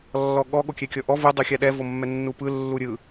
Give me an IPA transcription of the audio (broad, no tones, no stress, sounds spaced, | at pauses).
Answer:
lː ɔ ɠ ɔ ɠ o kʲ ɛ kʲ ɔ ʔ ɔ v u dˤ u xʲ a ɗ ɛ v o mː ɛ nː u p ɯ lː u ɾʲ ɯ